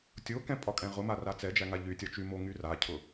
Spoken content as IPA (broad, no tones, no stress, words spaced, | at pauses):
tʲokɛ̃ pʼɒkʼɛ̃ʁʊma rat͡sɛd͡ʒæ ŋaʎytʲɒ t͡ʃymo ŋyracʰʊ